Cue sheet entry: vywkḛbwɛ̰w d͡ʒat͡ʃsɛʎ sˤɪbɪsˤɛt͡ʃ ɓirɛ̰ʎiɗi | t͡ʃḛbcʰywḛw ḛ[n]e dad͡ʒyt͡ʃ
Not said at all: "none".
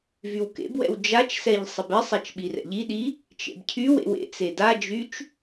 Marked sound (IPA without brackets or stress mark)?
t͡s